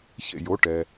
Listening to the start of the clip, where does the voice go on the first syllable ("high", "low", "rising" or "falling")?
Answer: falling